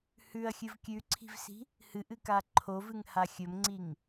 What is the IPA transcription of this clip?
h ʉ ɐ̯ xʲ ɨ v kʲ ʉ ǀʰ i̤ v s i̤ | h ɨ ʔ ɨ k a ǃʰ o v ɨ ŋ h a xʲ ɵ m ŋ͡ǀ i ŋ

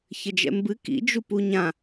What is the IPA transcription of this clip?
ç ɘ d͡ʒ ɛ̰ m b ɨ k ḭ d͡ʒ u p u ɲ ã

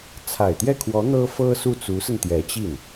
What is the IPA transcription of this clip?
t͡sʰ a˨˩ ɪ̯ t̪ j ɛ˥˩ kʰ w ɔ˧˥ n̪ ɤ˥ f ɤ˥ s u˥˩ t͡s u˧˥ s ə˧ n t̪ j ɛ˧˥ t͡ɕ i˥˩ n

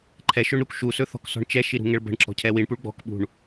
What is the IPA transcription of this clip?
ǃʰ ɛ ʃ ɵ ɳ ɾ u k ʃ u s ɵ θ ɔ̤ k s ɔ̤ ɳ t͡ʃ ɛ ʃ i ɾ ṳ ŋ ɛ ɭ b ə̤ ɳ ǁ ɔ̤ cʰ ɛ w i ɳ p u ɭ ɡ͡b ɔ̤ k ɓ ṳ ɳ

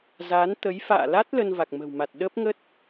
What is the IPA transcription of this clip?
z a˨˦ n t̪ ə˨˦ j f a̰ː˧˨ l a˦˥ t̚ l ə˧ n v a˨˩ k̚ m ə̤˨˩ w m a˨˩ t̚ ɗ ə˦˥ p̚ ŋ ə˦˥ t̚

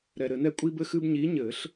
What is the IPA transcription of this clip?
ɾ ɛ˨ ɾ ɘ˨˩˦ n ɛ˦ kʷʼ i˦ b ɘ˦ x ɨ˦ b ɲ i˨˦ ɲ ɘ˨˩˦ ɬ

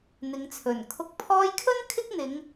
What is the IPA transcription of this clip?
n̪ ɪ˨˧ ŋ t͡sʰ ɵ˨˩ n kʰ ʊ˨˥ k̚ pʰ ɔː˧ j kʰ ɵ˥ n kʰ ɪ˥ k̚ n̪ ɪ˨˧ ŋ

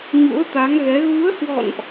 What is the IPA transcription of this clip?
ɲ ṵ˧˥ ə̯ t̪ a˨˦ ŋ ɣ ɛ˨˦ ɣ u˨˦ ə̯ h w ɔ̰˧˨ n ʔ

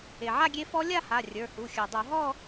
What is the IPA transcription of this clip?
e˩ ʕ a˥˧ ɡʲ e˧˥ f ɔ˧˥ lʲ a˥˧ h a˩˧˩ rʲ ə˞˩˧˩ h u˩˧˩ xʲ ə˞˩ dˤ o˧˩˧ ɦ ɔ˥˧

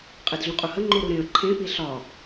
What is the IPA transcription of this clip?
qʼ e d ɮ ũ qʼ u h ə ŋ͡ǃ u ɾ u ɾ ẽ ə̯ ǃʰ ẽ p i ɬ ɒ

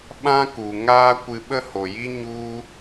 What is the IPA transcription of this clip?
ɓ ã˦ k u˨ ŋ aː˦ kʷ ɨ˧ ɓ ə˦ h o˨ j i˦ ɲ u˦

